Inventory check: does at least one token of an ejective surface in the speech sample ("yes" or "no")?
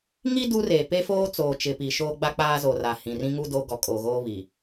yes